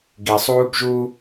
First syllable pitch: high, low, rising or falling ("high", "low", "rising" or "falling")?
low